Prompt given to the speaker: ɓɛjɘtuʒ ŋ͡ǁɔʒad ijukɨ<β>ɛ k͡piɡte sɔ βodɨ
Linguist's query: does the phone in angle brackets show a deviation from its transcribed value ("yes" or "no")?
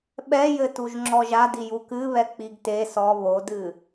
no